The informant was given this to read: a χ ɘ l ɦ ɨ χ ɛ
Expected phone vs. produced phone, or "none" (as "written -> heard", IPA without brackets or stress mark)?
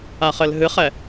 none